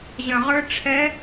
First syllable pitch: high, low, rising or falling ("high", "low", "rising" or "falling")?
low